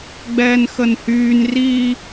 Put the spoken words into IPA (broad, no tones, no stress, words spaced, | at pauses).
ɡ͡bɛːnxənhyːn ri